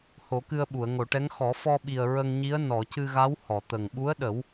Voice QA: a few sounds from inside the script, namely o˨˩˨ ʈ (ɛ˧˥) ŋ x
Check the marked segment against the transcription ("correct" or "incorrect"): correct